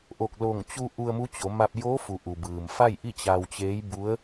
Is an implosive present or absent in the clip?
absent